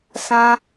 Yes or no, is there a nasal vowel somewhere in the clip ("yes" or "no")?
yes